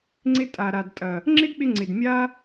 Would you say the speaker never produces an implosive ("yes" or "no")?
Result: no